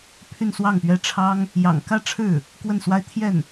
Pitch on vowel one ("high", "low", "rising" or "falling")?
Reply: falling